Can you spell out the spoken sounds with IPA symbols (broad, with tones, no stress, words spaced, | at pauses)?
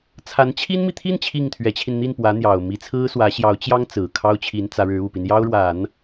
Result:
t͡sʰa˧˥nt͡ɕʰi˥nmi˨ t̪ʰi˥˧n t͡ɕʰi˥˩ŋt̪ʰɥɛ˧˥t͡ɕʰi˧n n̪i˥˩npwä˧˥ n̪jɑ˨˩ʊ̯mi˧˥ t͡sʰɹ̩˥swä˧˥ ɕjɑ˧˥ʊ̯t͡ɕjɑ˥ŋt͡sɹ̩˨˩ kʰɑ˥ʊ̯t͡ɕʰi˧˥nt͡sä˧˥ɻɻ̩˧˥ u˨˩pi˦njɑ˥ʊ̯ɻwa˨˩˦n